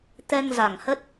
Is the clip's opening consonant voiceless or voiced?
voiceless